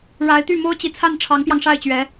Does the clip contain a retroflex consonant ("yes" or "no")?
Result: yes